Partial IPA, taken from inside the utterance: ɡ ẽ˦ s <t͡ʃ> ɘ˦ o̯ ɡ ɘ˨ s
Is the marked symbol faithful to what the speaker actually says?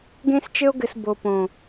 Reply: yes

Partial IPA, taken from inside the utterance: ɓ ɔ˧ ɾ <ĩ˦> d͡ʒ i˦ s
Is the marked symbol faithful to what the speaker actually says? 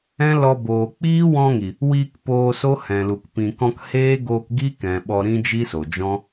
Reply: yes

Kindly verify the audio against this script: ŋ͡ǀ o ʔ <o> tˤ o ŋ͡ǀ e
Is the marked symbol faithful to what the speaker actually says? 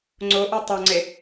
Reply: yes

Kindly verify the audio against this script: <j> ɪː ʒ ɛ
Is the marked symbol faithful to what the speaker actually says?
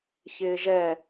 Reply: no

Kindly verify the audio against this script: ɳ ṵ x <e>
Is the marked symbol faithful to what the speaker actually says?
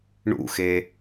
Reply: yes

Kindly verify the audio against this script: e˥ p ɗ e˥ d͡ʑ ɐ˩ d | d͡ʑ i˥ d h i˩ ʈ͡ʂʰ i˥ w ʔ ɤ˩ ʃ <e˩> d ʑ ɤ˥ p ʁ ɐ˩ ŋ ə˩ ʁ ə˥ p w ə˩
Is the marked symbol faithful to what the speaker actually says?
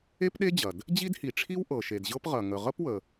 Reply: yes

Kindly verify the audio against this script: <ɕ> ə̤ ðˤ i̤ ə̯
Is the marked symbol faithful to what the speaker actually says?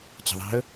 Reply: no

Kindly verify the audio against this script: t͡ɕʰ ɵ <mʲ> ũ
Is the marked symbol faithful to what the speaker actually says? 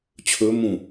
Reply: no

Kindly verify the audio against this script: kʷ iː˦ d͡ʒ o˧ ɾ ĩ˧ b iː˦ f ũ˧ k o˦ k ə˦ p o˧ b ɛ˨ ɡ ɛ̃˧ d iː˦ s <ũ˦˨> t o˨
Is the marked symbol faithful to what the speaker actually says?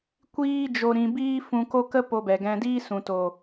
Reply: no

